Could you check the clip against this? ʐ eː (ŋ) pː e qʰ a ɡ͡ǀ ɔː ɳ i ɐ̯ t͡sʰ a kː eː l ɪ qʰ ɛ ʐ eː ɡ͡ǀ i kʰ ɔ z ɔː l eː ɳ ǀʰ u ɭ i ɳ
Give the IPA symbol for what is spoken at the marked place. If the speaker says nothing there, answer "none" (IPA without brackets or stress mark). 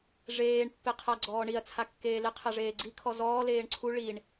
ɳ